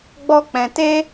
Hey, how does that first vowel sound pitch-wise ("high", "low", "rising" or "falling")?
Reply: high